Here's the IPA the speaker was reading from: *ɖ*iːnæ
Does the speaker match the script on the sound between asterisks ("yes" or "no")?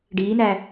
yes